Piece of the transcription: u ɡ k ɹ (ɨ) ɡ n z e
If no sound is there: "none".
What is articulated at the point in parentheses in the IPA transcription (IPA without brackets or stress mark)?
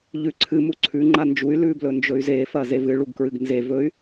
ɨ